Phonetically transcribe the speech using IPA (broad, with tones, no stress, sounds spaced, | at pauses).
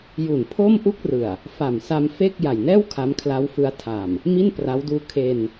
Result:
j u˨˩ n pʰ o˥˩ m ʔ u˥˩ k̚ r ɯ˨˩ a̯ | f a˨˩ m s a˧ m f e˥˩ k̚ j a˨˩ j n ɛː˥˩ w kʰ a˦˥ m kʰ l a˦˥ w f ɯ˦˥ a̯ tʰ a˨˩ m | m i˥˩ n p r a˦˥ w d uː˦˥ kʰ e˧ n